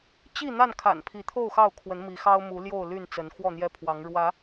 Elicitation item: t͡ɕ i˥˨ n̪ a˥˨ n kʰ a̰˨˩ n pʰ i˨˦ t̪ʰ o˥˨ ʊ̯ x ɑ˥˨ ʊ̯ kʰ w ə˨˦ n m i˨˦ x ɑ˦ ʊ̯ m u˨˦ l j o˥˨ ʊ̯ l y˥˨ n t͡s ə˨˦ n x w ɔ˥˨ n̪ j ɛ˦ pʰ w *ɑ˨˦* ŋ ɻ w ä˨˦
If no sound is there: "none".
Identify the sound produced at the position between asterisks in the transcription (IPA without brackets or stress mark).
ɑ˨˦